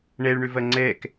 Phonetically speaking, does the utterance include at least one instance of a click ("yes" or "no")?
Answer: yes